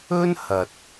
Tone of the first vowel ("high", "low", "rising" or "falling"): high